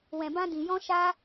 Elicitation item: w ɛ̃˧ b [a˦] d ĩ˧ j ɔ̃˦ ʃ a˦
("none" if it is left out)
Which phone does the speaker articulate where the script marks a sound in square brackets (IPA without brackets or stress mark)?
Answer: ã˦